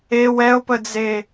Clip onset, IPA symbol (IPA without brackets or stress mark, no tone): e